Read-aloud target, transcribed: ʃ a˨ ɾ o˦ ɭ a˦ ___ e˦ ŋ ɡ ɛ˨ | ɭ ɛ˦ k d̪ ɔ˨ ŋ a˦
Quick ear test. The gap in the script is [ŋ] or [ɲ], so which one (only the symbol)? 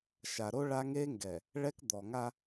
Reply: ŋ